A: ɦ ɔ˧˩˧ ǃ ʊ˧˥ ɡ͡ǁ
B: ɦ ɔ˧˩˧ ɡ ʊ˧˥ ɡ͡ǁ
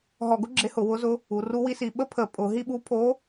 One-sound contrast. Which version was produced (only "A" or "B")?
B